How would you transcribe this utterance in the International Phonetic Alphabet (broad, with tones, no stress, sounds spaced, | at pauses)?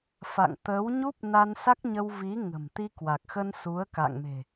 f a̰˧˨ ŋ t̪ ə˨˦ w ɲ u˦˥ p̚ n a˧ n s a˦˥ k̚ ɲ ə˧ w v i˨˦ ŋ ə̤˨˩ m t̪ i˧ k w a˨˩ k̚ x ə˧ n s u˨˦ ə̯ k a̰˧˨ ŋ m e̤˨˩